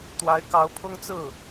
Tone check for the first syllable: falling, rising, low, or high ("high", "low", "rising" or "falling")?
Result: rising